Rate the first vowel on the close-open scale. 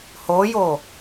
mid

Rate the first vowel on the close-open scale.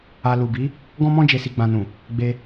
open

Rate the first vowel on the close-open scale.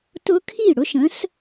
close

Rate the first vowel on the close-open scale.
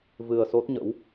close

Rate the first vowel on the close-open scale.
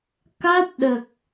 open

